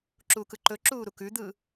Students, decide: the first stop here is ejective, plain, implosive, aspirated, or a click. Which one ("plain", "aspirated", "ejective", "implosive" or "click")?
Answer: click